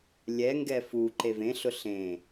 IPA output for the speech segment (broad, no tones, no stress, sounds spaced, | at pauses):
lʲ ɛ ŋ ɡ ɛ f u ǃ e v ẽ ɬ ʊ ɬ ẽ